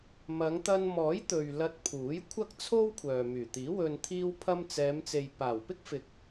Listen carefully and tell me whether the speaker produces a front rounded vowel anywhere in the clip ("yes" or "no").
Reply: yes